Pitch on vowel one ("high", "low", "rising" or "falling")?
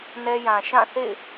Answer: high